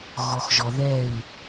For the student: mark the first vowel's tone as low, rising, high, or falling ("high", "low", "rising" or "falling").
low